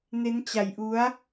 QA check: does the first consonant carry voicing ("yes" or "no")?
yes